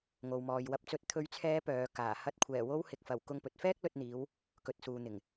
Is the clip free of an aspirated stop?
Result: no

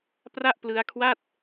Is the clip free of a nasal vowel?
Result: yes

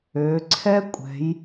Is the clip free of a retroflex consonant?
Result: yes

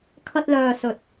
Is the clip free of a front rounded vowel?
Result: no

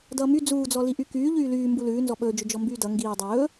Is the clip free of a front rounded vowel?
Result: no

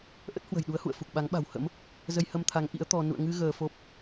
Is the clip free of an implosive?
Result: no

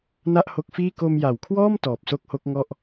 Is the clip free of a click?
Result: yes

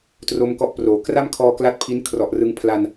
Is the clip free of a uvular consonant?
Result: yes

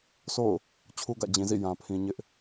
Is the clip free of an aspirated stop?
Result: no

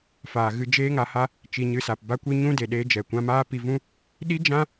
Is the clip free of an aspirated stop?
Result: yes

